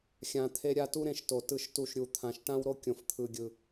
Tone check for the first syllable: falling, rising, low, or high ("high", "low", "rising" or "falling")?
low